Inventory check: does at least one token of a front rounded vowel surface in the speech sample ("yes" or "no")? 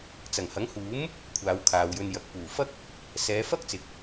no